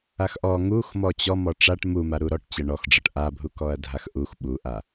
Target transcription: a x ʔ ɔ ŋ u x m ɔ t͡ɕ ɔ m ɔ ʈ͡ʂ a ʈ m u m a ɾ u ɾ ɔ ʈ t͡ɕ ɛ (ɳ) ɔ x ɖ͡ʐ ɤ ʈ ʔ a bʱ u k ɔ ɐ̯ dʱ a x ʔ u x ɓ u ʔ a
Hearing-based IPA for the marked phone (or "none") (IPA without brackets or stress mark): ɳ